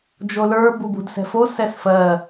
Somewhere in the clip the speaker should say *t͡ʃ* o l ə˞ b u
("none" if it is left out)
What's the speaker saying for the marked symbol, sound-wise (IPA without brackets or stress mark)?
d͡ʒ